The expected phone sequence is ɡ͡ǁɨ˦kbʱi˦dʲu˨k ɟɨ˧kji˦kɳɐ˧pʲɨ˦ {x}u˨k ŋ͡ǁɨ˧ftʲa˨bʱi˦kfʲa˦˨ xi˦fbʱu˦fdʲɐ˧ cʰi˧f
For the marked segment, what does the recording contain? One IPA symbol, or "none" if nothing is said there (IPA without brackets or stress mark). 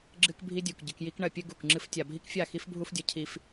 ɡ